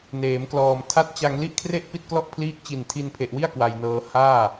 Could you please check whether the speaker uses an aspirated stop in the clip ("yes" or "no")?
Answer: yes